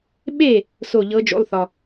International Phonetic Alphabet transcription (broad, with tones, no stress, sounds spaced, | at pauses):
ɓ e˥˨ | s o˥˨ ʎ ɤ˧˥ d͡ʒ o̰˧˥˧ lˠ θ ɒ˨